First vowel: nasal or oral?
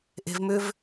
oral